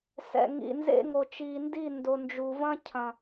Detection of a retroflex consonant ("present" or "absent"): absent